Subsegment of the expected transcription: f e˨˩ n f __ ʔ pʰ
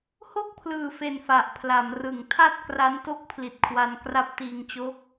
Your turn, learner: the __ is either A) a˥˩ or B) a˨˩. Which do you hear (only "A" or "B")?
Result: B